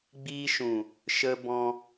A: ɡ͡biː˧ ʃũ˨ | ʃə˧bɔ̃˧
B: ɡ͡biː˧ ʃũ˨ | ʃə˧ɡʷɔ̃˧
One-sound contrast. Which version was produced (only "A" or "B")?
A